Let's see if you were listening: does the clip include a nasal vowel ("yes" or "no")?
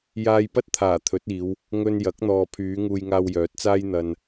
no